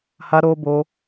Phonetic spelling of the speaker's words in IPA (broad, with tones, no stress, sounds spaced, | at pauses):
h a˦ ɾ oː˦ b oː˦